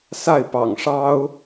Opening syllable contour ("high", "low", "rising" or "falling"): falling